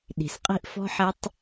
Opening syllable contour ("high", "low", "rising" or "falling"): low